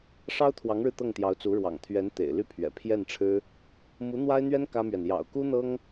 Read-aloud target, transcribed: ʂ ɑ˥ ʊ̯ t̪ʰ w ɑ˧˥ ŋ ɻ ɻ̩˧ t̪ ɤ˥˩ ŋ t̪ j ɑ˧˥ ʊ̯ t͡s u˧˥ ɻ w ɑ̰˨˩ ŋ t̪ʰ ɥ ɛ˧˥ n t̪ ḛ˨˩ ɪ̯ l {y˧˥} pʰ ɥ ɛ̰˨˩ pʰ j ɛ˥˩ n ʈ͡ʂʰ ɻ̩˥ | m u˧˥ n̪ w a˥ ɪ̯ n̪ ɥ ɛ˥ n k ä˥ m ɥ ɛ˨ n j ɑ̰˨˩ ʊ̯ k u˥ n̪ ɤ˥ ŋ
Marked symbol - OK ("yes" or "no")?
no